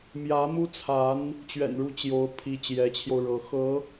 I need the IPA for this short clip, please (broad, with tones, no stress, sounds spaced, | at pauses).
m j ä˧˥ m u˥ t͡sʰ a˧˥ n | t͡ɕ ɥ ɛ̰˨˩ n ɻ u˧˥ t͡ɕ j o˧˥ ʊ̯ pʰ i˧˥ t͡ɕ j ɛ˧˥ t͡ɕʰ j o˧ ʊ̯ ɻ ɤ˧˥ x ɤ˧˥